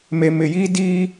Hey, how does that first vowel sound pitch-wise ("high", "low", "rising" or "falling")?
low